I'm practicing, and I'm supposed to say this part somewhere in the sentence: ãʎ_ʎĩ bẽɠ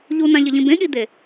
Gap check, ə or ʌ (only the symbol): ʌ